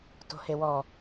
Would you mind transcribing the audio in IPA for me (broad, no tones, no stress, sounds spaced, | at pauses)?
t o̤ h e w ɔ